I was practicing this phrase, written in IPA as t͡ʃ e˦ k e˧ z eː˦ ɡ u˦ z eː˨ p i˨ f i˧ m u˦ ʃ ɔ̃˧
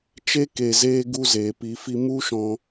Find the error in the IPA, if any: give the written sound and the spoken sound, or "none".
none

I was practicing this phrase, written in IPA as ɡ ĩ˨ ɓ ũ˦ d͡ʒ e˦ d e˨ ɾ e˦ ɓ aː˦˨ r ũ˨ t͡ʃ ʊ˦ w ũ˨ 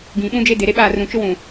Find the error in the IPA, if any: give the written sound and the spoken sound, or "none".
none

